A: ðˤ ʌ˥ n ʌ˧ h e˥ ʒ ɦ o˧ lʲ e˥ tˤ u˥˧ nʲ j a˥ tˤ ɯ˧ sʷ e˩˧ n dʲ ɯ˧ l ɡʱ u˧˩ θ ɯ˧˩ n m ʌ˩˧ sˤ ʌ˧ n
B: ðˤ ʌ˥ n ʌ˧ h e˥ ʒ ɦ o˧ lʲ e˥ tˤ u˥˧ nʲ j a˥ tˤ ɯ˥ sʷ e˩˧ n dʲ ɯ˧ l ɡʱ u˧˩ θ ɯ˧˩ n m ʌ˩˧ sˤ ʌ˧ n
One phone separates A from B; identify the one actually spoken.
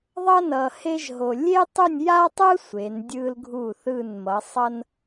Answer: B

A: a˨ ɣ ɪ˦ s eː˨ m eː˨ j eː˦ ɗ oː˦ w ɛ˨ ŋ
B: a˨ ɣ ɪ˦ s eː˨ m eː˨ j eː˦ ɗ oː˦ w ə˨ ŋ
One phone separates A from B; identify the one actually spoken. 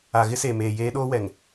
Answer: A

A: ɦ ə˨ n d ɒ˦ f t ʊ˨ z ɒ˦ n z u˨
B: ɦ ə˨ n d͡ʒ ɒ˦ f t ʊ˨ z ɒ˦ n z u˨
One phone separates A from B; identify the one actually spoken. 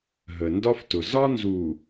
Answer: A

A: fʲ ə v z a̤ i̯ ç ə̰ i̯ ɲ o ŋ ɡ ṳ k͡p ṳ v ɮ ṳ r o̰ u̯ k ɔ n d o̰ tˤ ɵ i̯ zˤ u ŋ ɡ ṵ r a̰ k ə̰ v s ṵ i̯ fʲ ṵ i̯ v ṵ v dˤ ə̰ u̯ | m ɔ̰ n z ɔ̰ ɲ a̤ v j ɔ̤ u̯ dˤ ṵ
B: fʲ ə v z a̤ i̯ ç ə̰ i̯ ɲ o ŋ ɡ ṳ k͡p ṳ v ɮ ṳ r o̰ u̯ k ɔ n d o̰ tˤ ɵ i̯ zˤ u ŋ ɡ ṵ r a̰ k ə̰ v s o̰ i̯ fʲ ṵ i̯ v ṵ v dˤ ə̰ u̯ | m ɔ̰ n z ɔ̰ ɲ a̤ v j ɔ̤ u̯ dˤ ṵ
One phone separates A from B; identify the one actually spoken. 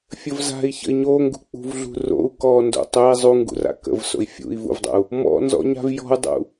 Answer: B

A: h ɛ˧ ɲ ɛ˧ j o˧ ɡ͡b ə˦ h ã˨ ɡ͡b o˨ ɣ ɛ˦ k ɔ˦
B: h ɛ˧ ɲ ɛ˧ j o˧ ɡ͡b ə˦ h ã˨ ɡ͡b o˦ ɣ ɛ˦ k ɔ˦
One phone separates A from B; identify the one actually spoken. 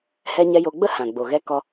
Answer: A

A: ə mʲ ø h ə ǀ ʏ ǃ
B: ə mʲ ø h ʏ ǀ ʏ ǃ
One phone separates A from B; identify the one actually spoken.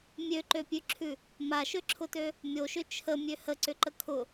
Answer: A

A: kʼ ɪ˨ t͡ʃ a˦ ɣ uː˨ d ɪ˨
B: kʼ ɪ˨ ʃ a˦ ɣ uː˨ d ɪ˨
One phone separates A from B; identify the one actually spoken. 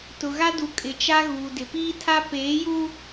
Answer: A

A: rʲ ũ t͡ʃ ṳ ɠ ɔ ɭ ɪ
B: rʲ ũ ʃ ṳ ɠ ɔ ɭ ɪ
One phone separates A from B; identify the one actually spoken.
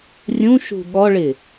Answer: B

